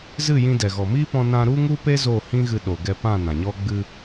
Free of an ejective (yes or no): yes